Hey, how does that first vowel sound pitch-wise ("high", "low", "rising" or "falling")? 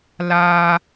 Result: high